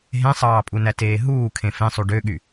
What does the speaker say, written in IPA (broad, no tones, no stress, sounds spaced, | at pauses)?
ɦ ẽ sˤ ɑː pʼ u n æ t eː ɦ uː kʰ ẽ f ẽ sˤ u ɖ ø ɠ y